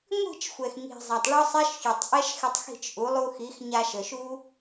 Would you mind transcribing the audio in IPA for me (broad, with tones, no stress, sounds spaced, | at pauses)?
ŋʷ i̤˦˨ t͡ʃ xʷ ɛ˨ x ŋ i̤˨ zˤ a˨ tˤ ɭ ɔ˦ sˤ ɛ˦ ʃ ç ø˨ tˤ ʔ ɛ˦ ʃ x ɪ˧ tˤ x i̤˦˨ t͡ʃ ʔ u˨˦ lˠ u˧ x i˨˦ x ɲ a˧ ʃ ə˨ ʃ u˦